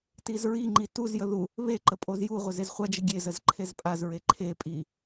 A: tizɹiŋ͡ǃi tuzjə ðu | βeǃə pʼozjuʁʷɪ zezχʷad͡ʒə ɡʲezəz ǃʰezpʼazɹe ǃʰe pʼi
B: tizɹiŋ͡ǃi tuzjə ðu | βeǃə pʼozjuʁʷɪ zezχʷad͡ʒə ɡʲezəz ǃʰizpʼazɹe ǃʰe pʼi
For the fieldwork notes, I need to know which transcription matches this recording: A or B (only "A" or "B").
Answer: A